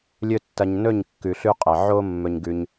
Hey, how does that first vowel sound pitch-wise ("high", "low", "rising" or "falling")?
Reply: high